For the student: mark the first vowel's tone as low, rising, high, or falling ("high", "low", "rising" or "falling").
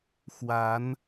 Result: rising